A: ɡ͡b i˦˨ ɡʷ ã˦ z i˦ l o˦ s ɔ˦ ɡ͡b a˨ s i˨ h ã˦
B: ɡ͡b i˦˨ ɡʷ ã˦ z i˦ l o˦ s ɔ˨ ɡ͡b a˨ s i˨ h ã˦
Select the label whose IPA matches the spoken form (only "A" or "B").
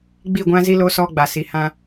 A